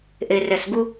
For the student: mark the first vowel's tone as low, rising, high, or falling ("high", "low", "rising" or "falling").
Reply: low